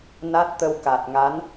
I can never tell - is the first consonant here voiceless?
no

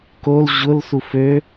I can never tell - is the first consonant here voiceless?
yes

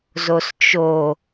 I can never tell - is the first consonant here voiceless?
no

